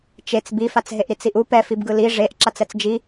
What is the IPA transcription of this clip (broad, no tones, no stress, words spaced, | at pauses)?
t͡ʃet͡s bifat͡sɦeʔɾit͡s iʔu pɛfibɡɯ li ʐeʔ ǁat͡sɛt͡sd͡ʒi